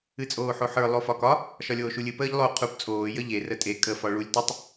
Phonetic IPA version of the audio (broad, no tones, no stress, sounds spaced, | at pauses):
ɨ t͡sʼ oː ħ o ħ ə˞ lˠ o f ɒ k ɒ | ʃ ɒ lʲ oː ʃ u lʲ ɨ p əː ʎ lˠ o qʰ u p t͡sʼ oː j ə ʎ e r ə tʼ e kʼ ə f ɒ ɭ u lʲ t ə tˤ